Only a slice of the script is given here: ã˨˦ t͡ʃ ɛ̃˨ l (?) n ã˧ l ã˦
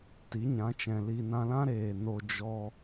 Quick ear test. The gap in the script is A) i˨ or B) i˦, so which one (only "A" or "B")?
A